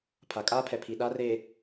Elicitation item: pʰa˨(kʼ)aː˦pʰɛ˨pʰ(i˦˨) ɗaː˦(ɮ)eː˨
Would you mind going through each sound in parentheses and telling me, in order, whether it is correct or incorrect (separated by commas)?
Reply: correct, incorrect, incorrect